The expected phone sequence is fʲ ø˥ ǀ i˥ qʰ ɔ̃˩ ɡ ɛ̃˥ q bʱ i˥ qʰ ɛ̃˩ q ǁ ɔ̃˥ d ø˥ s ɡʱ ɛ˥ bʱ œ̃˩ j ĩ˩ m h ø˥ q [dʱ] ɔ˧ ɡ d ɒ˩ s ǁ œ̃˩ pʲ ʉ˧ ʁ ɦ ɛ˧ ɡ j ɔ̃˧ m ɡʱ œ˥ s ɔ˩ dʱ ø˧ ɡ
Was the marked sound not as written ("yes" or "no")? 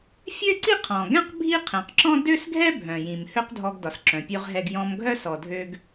no